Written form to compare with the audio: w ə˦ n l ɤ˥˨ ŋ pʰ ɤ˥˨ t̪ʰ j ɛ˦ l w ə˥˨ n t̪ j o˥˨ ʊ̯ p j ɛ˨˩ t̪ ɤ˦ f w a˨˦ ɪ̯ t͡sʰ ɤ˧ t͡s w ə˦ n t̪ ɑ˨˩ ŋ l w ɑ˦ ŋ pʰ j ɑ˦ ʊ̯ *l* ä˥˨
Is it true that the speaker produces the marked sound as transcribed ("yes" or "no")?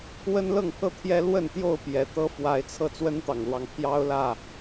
yes